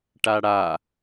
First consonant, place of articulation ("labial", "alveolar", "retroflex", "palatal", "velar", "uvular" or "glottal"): retroflex